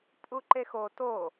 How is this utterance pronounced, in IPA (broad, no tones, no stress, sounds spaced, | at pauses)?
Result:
pʼ u ǃ e x o t o